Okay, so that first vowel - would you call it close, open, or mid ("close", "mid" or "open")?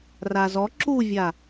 open